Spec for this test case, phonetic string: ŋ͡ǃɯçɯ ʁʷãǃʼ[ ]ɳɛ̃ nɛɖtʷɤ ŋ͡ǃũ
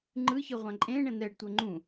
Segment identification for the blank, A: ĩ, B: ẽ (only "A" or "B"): B